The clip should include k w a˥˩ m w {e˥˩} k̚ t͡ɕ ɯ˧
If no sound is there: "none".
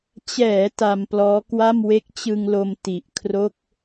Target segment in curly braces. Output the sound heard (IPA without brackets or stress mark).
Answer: e˦˥